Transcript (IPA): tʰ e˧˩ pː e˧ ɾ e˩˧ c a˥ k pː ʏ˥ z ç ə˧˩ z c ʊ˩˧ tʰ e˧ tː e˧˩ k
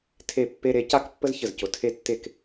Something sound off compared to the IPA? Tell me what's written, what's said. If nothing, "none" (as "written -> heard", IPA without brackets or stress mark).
ʏ˥ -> ə˥